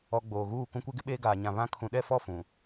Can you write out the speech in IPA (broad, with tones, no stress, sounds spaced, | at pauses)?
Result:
ɔ˨ ɡ͡b oː˨ ɣ uː˦˨ k ũ˦ kʷ e˦ ɡ ɪ˦ ɓ eː˦ ɡ aː˨ ɲ ã˨ β ã˦ kʰ ũ˨ ɗ ɛ˦˨ f ɔ˦˨ f ũ˨